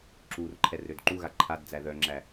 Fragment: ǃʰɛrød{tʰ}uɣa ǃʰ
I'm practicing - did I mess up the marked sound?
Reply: yes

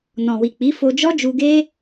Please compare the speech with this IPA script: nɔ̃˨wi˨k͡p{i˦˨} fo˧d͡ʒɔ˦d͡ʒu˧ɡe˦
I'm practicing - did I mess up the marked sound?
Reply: yes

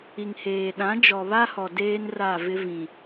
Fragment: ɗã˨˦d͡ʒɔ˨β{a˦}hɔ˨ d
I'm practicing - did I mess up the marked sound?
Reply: no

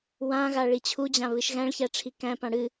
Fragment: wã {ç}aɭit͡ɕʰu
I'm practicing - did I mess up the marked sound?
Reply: yes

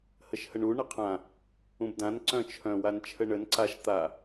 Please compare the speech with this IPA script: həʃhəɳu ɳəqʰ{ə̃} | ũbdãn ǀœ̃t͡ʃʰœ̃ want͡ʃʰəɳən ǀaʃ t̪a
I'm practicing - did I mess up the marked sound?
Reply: yes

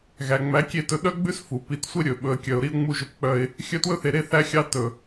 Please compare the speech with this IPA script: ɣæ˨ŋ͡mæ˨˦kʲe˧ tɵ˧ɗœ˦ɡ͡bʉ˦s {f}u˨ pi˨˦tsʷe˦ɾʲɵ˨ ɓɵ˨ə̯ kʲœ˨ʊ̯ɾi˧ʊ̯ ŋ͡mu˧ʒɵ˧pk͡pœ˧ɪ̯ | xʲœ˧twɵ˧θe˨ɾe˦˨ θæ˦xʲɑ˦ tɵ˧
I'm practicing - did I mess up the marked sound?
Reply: no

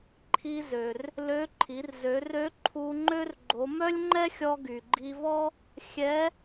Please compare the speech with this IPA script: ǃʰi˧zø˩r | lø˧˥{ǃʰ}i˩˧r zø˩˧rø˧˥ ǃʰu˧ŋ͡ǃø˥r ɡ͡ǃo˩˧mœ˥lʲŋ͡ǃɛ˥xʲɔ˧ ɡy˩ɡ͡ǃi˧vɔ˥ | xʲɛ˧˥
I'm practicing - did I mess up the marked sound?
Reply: no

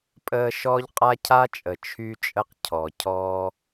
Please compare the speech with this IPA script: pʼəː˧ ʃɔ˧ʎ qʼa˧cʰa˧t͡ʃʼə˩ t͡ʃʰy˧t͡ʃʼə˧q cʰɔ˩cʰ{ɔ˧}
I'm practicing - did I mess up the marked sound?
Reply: no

